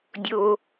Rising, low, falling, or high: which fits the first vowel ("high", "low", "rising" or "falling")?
high